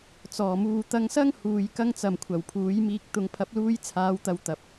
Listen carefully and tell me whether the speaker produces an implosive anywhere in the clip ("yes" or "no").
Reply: no